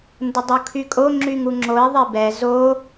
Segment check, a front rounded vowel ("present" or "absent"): present